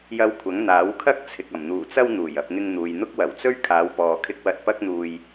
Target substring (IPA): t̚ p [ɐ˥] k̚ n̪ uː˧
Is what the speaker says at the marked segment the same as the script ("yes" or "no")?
yes